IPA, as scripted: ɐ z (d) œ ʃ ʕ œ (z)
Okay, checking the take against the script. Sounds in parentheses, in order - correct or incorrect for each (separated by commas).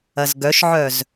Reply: incorrect, correct